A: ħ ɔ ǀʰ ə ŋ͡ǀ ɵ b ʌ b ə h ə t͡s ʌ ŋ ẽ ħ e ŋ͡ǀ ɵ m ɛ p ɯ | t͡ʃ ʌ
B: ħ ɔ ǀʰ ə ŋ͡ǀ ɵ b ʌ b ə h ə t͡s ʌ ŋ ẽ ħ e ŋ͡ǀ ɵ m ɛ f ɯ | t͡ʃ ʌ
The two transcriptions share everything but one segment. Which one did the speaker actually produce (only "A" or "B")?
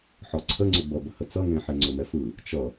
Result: B